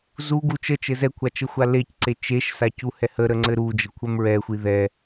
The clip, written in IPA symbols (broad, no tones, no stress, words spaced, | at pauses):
zu ɡut͡ʃət͡ʃɘ zɛkʷʰa t͡ʃəxʷalecǀe t͡ʃeʃsac uhɛhəɾə ŋ͡ǀɘɾud͡ʒə kʷʰɛmɹɛxʷi ðɛ